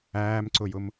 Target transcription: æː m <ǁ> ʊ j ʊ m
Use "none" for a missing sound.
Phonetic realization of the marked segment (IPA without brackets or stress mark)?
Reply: ǀ